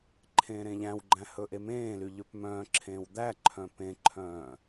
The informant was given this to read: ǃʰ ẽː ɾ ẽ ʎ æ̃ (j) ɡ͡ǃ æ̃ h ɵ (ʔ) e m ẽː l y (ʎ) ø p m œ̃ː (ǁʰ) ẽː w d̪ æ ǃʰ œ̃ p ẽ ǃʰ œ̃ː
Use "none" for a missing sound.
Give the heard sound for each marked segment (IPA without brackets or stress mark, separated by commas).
w, ʔ, ʎ, ǁʰ